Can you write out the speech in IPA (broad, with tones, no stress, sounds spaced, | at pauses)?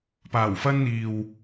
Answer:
p aː˨˩ w f ɐ˧ n n̪ iː˨ w